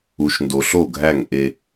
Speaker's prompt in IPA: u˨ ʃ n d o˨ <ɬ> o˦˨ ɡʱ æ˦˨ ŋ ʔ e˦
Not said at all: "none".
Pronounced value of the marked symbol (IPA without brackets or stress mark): ɬ